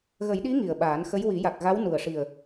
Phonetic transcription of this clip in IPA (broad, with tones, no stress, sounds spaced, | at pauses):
ɣ ə˨˩˦ j ɗ i˧˥ ŋ i˨˩ ə̯ ɓ aː˨˩˦ n x ə˧˥ j w i˨˩˦ j a˨˩ k̚ ɣ a˧˥ w n u˨˩ ə̯ ʂ i˨˩ ə̯